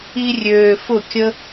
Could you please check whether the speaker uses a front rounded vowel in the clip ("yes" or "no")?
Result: yes